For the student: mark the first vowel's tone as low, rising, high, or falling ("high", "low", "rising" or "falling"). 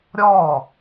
falling